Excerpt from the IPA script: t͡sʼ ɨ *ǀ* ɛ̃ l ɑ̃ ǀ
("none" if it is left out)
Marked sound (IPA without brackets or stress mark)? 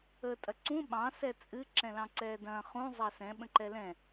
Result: ǁ